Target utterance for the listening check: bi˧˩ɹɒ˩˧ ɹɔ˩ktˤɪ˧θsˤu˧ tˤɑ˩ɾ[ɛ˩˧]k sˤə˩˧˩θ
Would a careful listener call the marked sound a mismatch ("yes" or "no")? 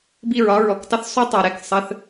yes